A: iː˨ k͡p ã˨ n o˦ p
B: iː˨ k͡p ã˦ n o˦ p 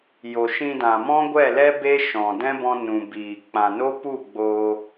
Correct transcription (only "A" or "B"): A